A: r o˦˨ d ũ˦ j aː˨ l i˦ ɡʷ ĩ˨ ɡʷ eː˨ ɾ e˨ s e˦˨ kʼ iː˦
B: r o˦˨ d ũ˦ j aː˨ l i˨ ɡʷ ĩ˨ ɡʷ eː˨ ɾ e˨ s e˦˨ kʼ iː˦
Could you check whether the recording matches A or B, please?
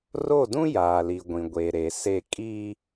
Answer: B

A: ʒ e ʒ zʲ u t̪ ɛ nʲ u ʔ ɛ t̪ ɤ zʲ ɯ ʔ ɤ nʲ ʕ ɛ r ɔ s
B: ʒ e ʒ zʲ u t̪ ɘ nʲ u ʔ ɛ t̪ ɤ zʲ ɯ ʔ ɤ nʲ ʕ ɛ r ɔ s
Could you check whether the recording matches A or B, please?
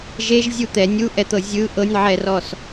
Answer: A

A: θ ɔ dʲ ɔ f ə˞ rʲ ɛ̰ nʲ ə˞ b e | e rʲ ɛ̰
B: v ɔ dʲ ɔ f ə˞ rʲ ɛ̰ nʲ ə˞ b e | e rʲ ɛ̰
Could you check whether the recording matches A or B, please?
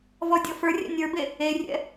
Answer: B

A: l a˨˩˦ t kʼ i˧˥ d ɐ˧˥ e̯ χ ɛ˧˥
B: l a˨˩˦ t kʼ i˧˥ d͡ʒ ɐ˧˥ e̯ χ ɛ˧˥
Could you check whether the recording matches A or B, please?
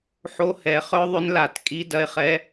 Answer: A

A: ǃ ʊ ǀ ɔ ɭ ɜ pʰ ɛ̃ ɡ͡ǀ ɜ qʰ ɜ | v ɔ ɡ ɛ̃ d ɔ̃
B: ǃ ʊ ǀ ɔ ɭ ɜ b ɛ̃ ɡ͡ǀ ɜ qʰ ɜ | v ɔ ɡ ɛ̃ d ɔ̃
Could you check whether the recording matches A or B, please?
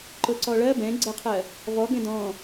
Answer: B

